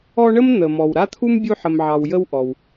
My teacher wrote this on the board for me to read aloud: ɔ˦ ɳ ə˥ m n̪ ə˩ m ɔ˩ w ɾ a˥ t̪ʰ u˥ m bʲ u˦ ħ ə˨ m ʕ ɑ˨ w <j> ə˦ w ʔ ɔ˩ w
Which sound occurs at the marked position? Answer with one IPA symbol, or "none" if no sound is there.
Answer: j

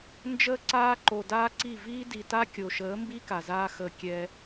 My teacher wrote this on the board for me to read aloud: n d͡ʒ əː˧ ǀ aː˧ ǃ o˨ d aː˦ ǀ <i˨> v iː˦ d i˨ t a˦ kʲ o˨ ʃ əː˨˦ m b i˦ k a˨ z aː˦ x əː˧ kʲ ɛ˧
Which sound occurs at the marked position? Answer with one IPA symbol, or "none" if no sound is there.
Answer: i˦˨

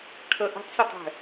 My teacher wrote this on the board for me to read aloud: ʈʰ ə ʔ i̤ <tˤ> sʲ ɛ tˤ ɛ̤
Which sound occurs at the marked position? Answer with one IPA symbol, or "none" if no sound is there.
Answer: tˤ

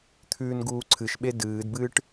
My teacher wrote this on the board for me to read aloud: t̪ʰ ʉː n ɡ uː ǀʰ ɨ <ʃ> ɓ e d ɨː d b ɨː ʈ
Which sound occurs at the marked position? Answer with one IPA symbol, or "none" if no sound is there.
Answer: ʃ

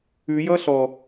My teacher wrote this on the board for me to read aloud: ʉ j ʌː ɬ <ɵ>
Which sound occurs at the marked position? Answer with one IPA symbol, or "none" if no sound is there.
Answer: ɔ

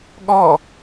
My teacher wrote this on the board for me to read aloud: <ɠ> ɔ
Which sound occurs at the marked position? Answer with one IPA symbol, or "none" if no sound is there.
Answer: ɠ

